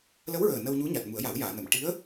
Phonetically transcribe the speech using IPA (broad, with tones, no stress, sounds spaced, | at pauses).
l ə˧˥ w ɹ əː˨˩ n ə˧ w ɲ u˧˥ ɲ a˨˩ t̚ m u˨˩˦ ə̯ j a˨˩˦ w j aː˨˩˨ n ə˨˩˨ m ʈ i˧˥ ə̯